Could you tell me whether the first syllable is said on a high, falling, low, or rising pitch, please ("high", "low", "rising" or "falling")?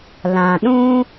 low